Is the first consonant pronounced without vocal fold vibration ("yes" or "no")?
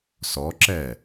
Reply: yes